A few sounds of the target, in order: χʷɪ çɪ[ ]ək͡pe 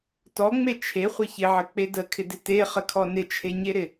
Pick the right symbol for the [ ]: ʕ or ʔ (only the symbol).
ʕ